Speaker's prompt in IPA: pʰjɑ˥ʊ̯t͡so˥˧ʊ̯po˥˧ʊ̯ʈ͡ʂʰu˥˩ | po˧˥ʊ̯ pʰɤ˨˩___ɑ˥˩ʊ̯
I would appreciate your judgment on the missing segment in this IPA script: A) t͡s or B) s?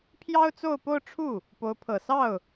B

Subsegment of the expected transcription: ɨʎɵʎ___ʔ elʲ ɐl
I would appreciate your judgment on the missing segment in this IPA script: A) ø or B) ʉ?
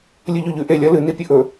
B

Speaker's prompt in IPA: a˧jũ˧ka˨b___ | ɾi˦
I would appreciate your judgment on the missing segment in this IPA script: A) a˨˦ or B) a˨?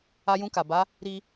A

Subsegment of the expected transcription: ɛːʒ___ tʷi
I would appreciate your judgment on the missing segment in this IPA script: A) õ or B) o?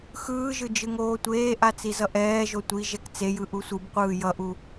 B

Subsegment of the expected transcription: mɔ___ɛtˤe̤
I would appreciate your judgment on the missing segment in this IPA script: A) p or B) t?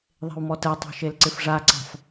B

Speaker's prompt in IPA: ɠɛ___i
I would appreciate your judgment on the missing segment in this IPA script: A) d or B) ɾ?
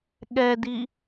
A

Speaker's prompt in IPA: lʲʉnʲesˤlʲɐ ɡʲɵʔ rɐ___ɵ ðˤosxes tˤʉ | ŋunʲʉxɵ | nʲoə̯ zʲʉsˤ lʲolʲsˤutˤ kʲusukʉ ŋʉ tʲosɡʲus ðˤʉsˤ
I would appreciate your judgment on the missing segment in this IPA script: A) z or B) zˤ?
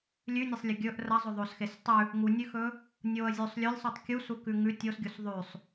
B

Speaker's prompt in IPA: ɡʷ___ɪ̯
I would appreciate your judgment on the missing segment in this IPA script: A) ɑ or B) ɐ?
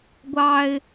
A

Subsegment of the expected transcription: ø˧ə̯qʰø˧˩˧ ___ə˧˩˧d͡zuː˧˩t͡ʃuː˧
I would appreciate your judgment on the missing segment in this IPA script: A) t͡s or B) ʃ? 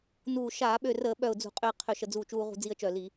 B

